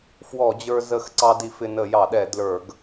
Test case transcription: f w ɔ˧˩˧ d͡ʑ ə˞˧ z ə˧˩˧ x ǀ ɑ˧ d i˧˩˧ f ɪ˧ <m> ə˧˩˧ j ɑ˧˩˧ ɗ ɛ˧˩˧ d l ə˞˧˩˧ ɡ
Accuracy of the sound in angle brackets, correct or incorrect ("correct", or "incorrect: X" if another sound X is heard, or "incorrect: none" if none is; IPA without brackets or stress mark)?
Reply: incorrect: n